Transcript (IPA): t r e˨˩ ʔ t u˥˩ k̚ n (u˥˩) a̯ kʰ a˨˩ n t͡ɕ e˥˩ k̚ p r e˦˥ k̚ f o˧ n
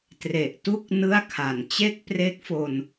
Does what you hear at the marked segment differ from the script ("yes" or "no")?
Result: yes